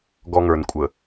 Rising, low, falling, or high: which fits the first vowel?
high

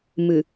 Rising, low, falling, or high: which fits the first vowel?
low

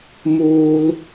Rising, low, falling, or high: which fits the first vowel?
high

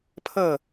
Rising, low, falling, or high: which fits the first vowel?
falling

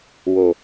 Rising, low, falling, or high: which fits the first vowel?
low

